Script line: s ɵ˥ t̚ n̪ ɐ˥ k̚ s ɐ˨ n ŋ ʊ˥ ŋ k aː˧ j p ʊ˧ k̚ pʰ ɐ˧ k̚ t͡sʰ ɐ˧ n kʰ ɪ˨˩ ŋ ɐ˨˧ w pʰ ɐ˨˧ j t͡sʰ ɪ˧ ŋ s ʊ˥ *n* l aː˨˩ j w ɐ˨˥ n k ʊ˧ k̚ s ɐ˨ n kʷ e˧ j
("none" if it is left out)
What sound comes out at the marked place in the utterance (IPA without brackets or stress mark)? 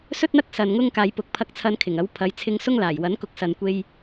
ŋ